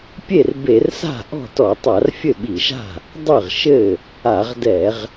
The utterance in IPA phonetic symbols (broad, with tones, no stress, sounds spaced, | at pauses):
pʲ e˥˩ r b e˧˩˧ r s a̤˥˩ ʔ ɔ̤˥˩ t ɔ˧˩˧ tˤ a˧˩˧ r fʲ ɘ˥˩ ɓ i˧˩˧ ʃ a̤˥˩ | dˤ ɨ˥˩ ʁ ʃ ɘ˥˩ | a˧˩˧ ʁ d ɛ˧˩˧ ʁ